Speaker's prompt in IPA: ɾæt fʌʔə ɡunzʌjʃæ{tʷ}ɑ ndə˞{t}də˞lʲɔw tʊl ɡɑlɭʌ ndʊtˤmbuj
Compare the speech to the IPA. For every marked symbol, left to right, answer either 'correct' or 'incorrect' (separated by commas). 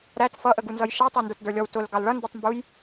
incorrect, correct